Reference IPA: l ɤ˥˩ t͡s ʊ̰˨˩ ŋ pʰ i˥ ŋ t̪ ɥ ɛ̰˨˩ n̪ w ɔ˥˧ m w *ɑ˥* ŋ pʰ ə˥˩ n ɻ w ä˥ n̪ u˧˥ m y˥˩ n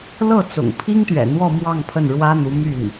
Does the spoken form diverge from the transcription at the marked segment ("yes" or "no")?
yes